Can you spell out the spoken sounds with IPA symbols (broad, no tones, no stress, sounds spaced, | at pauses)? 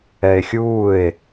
ɛ e̯ xʲ uː e̯